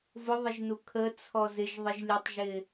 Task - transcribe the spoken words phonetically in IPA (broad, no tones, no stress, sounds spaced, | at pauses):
v ʊ ðˤ ɪ ʒ n u kʰ ə t͡sʰ ɔ z ɪ ʒ ðˤ ɪ ʒ lʲ ə tˤ ʒ ɪ